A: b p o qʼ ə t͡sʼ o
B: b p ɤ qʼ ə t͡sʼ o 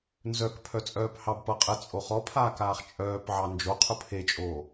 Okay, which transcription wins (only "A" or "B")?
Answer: B